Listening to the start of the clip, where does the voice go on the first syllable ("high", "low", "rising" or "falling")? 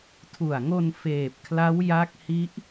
low